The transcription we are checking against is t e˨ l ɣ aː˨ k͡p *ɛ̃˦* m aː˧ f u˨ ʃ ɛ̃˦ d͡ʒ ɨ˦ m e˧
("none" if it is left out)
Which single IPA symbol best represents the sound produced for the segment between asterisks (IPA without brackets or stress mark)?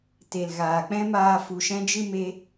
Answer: ɛ̃˦